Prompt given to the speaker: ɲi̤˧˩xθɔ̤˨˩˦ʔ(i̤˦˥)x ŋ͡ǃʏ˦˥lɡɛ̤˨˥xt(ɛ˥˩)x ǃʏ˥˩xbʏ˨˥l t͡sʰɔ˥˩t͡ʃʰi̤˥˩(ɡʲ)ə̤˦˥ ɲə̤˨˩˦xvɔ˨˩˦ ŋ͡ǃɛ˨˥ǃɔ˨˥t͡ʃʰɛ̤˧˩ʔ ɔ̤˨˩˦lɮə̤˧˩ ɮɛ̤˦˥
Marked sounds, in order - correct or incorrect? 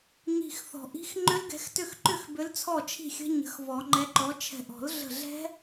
correct, incorrect: ʏ˥˩, incorrect: xʲ

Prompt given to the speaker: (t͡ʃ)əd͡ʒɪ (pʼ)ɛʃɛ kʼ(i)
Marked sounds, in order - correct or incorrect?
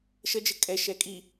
incorrect: ʃ, incorrect: kʼ, correct

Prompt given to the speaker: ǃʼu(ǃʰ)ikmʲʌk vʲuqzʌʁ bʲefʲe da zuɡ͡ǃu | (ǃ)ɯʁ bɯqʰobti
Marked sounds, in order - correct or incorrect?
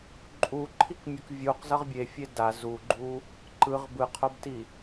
correct, correct

